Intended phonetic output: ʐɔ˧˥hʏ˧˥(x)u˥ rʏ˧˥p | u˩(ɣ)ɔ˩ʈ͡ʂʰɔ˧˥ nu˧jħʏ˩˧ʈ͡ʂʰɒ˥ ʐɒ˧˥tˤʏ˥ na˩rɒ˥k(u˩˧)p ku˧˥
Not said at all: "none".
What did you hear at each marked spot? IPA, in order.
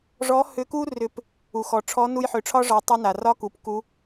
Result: k, x, u˩˧

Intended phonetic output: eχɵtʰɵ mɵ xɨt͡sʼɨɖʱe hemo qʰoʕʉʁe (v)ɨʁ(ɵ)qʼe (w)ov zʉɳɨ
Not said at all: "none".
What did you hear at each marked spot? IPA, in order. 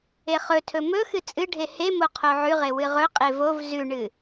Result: w, ɵ, v

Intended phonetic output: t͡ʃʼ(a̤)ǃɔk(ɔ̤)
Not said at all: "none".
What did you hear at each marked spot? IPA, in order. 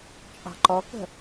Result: ɑ̤, ə̤

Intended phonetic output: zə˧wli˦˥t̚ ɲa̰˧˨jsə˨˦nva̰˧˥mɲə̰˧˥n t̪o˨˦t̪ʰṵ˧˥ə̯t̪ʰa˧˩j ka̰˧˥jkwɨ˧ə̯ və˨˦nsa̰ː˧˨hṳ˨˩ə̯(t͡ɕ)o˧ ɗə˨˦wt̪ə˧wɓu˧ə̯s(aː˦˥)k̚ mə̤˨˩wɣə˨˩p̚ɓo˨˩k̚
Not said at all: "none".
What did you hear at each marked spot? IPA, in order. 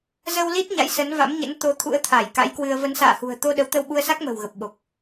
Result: t̪, a˦˥

